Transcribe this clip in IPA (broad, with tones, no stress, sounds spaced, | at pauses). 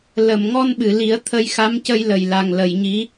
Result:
l ə˨˩˨ m ŋ ɔ˧ n ɓ ɨ˨˩˨ l i˨˩˦ ə̯ t̪ʰ ə˧ j x a˧˥ m c ə˧ j l ə˨˩ j l a˨˩ ŋ l ə˨˩˨ j ɲ i˧˥